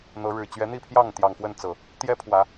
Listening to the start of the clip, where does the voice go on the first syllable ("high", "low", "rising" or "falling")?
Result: rising